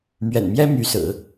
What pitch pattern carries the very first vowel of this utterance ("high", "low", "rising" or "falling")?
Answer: low